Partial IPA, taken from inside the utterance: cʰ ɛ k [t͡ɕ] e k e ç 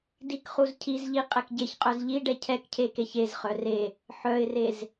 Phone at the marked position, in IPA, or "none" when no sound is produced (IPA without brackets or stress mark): cʰ